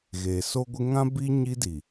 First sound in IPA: ɣ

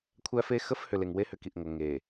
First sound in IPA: kʷʰ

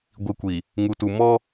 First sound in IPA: ɡʷ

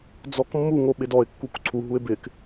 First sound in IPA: d͡z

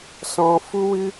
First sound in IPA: s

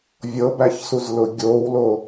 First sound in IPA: vʲ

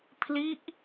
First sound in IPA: pʰ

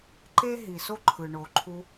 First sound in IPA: ǃ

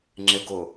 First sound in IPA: ŋ͡ǁ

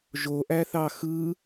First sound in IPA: ʒ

